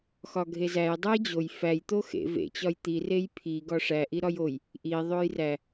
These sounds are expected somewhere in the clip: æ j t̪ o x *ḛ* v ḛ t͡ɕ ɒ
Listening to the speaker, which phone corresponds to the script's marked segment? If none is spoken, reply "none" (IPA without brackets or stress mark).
ḛ